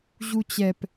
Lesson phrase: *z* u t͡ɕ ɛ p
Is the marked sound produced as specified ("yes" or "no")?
no